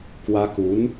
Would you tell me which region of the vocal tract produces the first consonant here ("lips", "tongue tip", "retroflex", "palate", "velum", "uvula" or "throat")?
velum